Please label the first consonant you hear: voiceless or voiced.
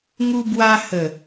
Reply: voiced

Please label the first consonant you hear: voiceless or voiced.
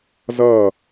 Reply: voiced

